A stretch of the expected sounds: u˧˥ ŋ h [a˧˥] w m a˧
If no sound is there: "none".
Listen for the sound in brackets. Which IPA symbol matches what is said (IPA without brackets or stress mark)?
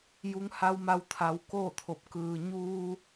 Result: a˧˥